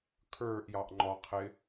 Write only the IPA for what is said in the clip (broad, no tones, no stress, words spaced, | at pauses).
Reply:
kʰə˞ʔjɑʔŋ͡ǃɔqʰɪ